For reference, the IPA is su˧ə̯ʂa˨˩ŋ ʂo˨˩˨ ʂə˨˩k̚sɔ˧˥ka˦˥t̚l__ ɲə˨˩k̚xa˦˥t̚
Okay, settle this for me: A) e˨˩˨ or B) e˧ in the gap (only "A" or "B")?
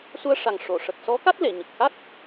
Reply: A